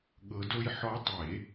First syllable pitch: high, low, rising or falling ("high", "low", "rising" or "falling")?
rising